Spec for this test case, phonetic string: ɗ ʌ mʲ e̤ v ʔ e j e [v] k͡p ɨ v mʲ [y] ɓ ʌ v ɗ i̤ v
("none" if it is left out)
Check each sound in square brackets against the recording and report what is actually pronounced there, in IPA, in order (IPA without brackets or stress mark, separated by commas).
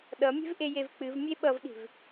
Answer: v, e